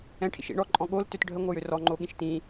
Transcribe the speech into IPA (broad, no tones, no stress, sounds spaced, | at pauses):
ɛ̃ ʈʰ ḭ ʃ ḭ ɳ ɔ ǃʼ ɔ̃ ɠ o l t ø t ɖʱ ə ŋʷ ɤ j ø r ɔ ŋ͡ǃ o ɠ ĩ ʃ t ĩ